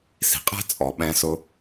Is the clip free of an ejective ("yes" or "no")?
no